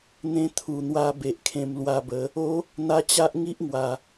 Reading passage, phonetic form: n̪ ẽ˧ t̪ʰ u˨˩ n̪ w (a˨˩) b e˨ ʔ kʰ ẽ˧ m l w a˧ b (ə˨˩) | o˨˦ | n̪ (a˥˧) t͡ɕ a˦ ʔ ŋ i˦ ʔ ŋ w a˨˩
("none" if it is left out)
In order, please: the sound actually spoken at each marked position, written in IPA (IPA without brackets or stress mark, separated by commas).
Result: a˧, ə˨˦, a˧